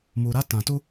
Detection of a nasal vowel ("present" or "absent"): present